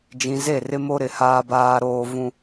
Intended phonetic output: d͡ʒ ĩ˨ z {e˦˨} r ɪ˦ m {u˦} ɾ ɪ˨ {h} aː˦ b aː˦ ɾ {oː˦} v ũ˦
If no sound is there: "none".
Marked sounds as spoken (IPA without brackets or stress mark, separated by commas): e˦˨, o˦, h, oː˦